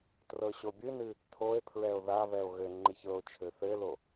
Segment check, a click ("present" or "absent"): present